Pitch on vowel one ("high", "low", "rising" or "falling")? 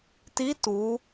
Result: rising